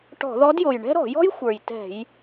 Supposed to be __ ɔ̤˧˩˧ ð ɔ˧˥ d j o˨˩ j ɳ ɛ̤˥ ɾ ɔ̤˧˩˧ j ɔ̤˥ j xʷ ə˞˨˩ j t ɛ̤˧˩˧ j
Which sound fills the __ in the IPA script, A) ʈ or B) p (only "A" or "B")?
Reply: A